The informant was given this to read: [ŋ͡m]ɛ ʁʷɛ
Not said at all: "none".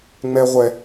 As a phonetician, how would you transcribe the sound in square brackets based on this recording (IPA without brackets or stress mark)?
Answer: ŋ͡m